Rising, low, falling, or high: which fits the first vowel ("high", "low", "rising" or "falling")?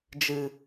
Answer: low